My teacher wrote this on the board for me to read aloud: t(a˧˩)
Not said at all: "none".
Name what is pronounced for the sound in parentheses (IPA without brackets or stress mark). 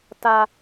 a˧